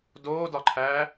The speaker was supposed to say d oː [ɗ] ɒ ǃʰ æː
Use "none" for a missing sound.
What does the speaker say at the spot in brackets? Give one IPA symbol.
d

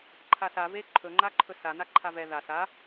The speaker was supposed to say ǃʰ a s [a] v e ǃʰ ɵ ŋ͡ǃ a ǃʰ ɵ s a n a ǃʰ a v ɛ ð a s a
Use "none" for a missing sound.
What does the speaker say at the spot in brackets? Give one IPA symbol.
a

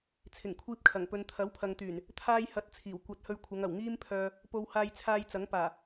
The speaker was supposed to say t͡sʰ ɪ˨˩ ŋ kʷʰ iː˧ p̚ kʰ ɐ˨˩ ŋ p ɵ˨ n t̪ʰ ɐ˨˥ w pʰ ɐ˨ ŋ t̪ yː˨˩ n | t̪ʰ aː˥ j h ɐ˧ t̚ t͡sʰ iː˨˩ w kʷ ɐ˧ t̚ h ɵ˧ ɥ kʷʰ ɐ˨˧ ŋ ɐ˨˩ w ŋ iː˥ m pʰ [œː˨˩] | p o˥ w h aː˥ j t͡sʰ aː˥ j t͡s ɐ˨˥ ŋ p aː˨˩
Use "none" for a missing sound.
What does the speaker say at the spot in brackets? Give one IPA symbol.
œː˧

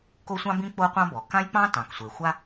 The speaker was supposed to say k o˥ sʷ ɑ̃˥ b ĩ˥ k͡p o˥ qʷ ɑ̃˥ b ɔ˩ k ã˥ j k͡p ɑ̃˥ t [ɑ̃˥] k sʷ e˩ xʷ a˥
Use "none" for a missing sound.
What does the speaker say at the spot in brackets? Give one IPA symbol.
ɑ̃˩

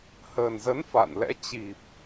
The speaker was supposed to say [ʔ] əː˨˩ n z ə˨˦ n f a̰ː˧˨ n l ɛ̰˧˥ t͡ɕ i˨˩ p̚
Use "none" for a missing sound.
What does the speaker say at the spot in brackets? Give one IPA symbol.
h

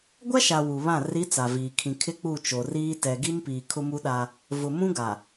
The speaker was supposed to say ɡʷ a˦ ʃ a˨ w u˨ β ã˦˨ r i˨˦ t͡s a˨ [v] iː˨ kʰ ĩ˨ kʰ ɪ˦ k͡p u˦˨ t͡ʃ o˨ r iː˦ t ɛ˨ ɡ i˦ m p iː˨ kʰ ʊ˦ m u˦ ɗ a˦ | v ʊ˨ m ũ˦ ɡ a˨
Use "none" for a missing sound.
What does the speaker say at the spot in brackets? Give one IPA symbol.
v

